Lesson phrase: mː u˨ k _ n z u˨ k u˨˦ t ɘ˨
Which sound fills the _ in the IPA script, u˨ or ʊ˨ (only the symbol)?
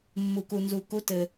u˨